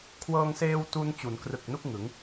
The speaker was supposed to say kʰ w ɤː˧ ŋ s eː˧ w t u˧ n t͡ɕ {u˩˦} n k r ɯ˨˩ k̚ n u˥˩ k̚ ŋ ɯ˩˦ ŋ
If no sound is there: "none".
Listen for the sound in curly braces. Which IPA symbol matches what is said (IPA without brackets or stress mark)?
u˩˦